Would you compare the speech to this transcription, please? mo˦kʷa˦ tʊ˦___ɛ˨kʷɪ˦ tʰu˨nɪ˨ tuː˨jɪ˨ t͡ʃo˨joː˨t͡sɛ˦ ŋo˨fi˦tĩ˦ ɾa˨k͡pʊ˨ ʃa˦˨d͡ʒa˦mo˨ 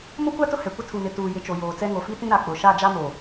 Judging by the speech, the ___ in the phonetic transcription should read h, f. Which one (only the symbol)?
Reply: h